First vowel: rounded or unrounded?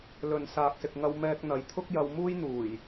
rounded